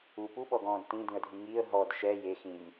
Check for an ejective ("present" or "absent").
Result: absent